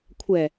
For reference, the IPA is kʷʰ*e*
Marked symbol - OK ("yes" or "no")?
no